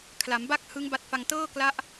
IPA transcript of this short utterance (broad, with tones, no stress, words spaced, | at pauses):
kʰla˩˦mba˦˥k̚ hɯ˦˥ŋ ba˦˥t̚fa˧ŋ tɤː˥˩kla˦˥ʔ